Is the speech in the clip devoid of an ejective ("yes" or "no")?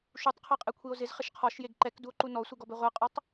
no